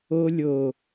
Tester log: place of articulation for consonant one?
alveolar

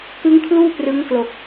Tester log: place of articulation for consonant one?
velar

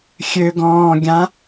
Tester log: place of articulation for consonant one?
velar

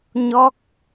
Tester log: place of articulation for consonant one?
palatal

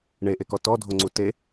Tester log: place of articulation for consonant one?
retroflex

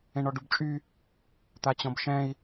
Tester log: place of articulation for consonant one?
retroflex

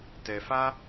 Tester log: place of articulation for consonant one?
alveolar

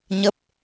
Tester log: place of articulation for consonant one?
palatal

